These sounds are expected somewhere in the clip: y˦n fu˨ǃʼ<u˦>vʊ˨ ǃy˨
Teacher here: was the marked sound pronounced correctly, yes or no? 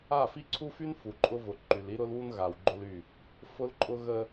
no